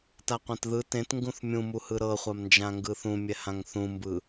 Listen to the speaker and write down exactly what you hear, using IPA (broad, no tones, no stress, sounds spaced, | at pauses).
t a qʷ ã t ð ɯ t ẽ t ŋ ɡ ũ θ mʲ ũ m u h ɯ ɾ ɤ χʷ a m n d͡ʒ ã ŋ ɡ ɯ θ ũ mʲ ɛ h ã ŋ θ ũ m b ɯ